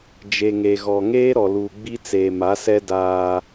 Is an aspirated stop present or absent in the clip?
absent